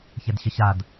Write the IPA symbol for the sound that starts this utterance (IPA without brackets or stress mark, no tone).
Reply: ç